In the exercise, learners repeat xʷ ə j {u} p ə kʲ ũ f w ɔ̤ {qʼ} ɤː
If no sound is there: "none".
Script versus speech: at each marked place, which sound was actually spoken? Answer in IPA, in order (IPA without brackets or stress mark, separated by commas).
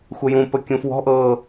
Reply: ũ, ʔ